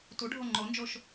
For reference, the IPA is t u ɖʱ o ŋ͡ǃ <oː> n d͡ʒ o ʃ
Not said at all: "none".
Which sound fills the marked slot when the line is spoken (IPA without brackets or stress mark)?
o